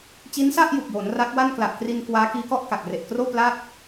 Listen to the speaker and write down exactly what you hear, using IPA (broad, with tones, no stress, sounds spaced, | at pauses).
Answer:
t͡ɕ i˦˥ n s a˥˩ ʔ j u˨˩ k̚ j oː˩˦ n r a˦˥ k̚ w a˥˩ n k l a˨˩ ʔ k r i˧ n k w aː˦˥ k iː˦˥ k ɔ˥˩ ʔ k a˨˩ k̚ r e˨˩ ʔ k r oː˥˩ p l a˥˩ t̚